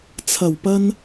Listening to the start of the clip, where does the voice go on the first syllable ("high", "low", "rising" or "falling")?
low